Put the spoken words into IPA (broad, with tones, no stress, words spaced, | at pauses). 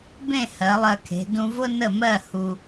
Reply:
bẽ˥˧ hɜ˩˧lˠɜ˧kʰe̤˩˧ dũ˧vʊ˥ nə˥˧mɜ˥˧ hu˧